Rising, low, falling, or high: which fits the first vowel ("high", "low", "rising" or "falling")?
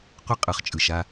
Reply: high